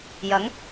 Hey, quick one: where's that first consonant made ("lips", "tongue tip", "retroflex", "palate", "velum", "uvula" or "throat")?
palate